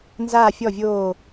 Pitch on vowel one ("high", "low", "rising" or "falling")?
falling